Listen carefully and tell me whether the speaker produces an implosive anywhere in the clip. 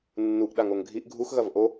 yes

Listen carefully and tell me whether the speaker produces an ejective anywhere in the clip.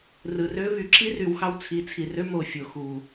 no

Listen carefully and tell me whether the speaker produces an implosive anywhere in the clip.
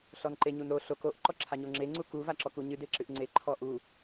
no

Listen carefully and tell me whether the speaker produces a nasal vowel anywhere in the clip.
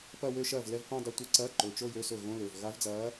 yes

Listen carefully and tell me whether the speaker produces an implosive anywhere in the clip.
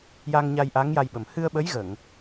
yes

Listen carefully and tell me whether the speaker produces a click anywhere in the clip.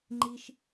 yes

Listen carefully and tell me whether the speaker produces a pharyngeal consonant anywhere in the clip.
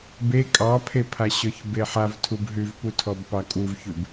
yes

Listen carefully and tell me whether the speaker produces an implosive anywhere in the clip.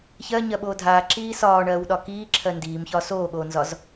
yes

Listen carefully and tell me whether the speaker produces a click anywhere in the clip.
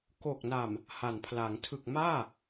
no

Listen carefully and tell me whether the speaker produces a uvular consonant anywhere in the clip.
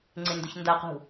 yes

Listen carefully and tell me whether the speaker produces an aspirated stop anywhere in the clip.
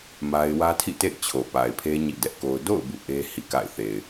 yes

